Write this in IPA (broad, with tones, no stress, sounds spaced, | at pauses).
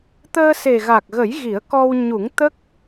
t̪ əː˧ s e˨˩ ɣ a˨˩ k̚ ɣ ə˨˩˦ j ɣ i˨˩˦ ə̯ k ɔ˧ w ɲ u˨˩˦ ŋ t̪ ə˦˥ k̚